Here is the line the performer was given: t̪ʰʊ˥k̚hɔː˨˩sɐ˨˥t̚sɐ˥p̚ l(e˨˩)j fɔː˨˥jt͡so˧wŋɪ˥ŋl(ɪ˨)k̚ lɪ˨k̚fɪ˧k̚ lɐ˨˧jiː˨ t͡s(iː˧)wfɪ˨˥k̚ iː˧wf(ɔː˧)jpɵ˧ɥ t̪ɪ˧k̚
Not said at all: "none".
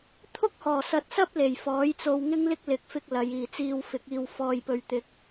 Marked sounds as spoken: e˨˩, ɪ˥, iː˧, ɔː˧

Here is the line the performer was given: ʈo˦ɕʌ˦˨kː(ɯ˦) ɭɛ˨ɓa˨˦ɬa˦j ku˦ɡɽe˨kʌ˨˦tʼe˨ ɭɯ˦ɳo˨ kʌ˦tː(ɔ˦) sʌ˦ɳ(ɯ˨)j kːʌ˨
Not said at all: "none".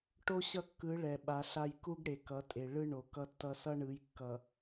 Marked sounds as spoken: ɯ˨˦, ʌ˦, ɯ˨˦

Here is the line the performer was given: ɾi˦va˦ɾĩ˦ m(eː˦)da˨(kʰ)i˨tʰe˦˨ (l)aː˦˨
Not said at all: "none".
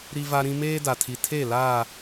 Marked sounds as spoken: eː˦, tʰ, l

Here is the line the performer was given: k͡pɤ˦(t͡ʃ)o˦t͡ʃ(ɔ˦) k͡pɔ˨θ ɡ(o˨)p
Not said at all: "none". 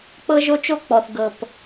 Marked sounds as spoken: ʒ, o˦, ɤ˨

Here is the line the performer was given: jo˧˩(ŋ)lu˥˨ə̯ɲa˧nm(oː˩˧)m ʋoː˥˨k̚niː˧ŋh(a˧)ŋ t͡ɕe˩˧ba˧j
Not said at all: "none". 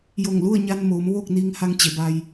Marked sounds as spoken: ŋ, oː˩˧, a˧

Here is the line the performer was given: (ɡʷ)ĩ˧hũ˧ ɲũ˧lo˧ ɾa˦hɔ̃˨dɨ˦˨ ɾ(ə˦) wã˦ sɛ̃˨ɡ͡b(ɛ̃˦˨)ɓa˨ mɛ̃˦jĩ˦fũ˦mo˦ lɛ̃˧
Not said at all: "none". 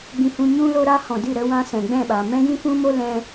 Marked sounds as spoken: ɡ͡b, ə˨, ɛ̃˦˨

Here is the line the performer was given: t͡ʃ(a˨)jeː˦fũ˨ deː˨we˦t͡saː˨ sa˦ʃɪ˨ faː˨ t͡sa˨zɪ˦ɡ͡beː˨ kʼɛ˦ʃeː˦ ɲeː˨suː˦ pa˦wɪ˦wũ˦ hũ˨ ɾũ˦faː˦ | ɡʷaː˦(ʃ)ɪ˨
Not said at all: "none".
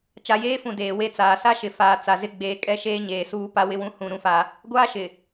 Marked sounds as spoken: a˨, ʃ

